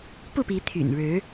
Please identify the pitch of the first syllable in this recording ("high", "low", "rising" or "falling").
falling